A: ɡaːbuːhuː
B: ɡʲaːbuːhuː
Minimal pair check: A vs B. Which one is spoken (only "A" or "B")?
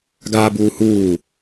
A